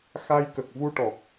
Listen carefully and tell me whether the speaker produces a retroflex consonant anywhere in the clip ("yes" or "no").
yes